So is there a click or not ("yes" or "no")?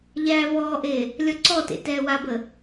yes